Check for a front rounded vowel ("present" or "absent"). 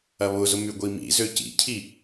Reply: present